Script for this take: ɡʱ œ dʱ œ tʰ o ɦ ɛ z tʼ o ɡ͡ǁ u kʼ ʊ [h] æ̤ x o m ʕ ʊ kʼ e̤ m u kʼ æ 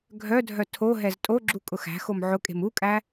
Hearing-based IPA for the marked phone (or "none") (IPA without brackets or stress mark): x